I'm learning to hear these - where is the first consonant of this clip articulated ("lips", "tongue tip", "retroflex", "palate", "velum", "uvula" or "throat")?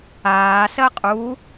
tongue tip